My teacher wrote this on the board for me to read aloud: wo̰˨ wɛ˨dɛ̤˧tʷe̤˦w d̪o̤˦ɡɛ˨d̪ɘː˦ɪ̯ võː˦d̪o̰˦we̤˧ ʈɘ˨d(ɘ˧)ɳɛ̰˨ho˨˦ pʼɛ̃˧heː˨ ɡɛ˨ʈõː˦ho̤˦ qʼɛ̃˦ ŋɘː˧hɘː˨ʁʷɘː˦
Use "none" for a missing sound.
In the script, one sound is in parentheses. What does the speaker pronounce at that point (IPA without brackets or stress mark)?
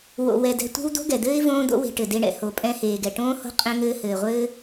e˧